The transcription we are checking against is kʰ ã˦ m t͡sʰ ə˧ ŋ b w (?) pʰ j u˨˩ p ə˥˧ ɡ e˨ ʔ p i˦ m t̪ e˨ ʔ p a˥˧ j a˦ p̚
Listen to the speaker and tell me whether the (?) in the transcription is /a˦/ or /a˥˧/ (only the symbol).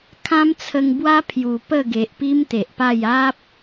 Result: a˦